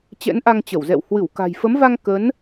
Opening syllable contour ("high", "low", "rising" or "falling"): rising